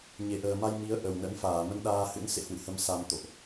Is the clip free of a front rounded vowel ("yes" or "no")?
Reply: yes